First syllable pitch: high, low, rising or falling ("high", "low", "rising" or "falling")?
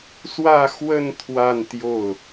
falling